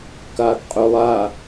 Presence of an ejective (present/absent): present